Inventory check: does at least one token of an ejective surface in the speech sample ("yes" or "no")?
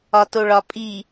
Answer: yes